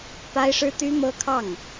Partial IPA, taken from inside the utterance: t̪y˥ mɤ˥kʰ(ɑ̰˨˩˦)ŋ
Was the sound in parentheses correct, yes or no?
no